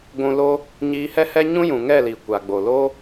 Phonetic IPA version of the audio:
ɡʷ ũ˧ l o˦ | ɲ iː˧ h ɛ˦ h ɛ˦ ɲ ũ˦ j ũ˨ ŋ ɛ˦˨ l i˨ kʷ a˨ ɡ͡b o˨ l o˦

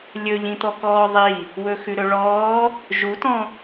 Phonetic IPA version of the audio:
lʲ ɵ ʎ ĩ t̪ ɔ k ɔː ðˤ i | w ɵ x ʉ ɾ ɵ ɭ ɔː | ʒ u t ɔ̃

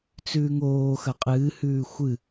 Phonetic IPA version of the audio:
t͡s ʉː ŋ oː x ɐ qʼ ɨː h ʉː xʷ ɨ

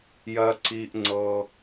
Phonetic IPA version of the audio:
j ɜ˩ ǀ i˩ ʔ ŋ͡ǀ ɤ˩

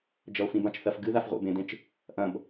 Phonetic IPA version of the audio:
d͡ʒ ɐ o̯ f ĩ b ã t͡ʃ θ ɐ f ɡ ɨ ð a f ʁʷ ḛ b ẽ d ẽ t͡ʃ | ʔ ɐ̃ b

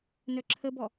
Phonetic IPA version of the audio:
n œ ǁʰ ə b ɔ

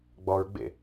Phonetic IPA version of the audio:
ɡ͡b ɔ ɹ ɡ͡b ḛ

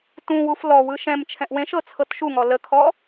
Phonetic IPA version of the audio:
t ũ w u f l ɔ w ɯ ʃ ɛ̃ m t͡ʃʰ ɛ̃ ʔ w ẽ ʃ ɤ t͡sʰ ɤ t ʃ u ŋ ɔ l ə kʰ ɔ

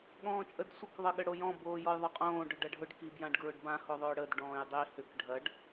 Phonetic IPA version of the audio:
ɠ ɔ̃ː t͡ʃʼ ə d sʷ ə k ðˤ ə ɠ ə ɽ o j ɔ̃ b oː j ɔ j ðˤ œ qʼ õː ɖ ʊ ɖ ɐ ɖʱ ʊ ɖ k i b j ã ɖ ɡ ɹ ʊ ɖ b ã h o ðˤ ʏː ɽ ə d ɖ ɔ̃ː j dˤ i h ʏ k ɖʱ ɐ ɖ

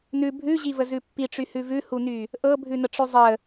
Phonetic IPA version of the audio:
n ʉ bʱ ʉ ʑ i v ə z ʉ pː i ʈ͡ʂ y h ʉ v ʉ h u n y | ʔ ɤ bʱ ʉ n ə ʈ͡ʂ ʉ zˤ ə

